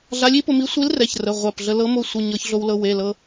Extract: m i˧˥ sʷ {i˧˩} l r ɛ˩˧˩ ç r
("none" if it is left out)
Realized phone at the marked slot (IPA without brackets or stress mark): i˧˥